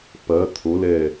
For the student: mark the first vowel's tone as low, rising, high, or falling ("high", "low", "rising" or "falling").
rising